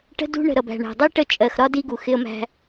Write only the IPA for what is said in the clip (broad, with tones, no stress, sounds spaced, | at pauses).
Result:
ʈ ə̤˦ d ṳ˦ ɳ ə̤˨ ɾ ʌ˨ b æ̤˨ ɳ æ̤˨ dˤ i˦ ʈ ə˦˨ t͡ʃʼ ɜ˨ x ɾ ɒ˦ d i˦ ɡ u˨ x ɪ˦ ə̯ m æ̤˦